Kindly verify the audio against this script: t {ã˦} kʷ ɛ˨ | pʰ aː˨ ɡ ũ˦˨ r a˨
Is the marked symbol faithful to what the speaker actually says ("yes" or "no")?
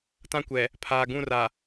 yes